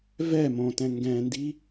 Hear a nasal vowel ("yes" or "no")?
yes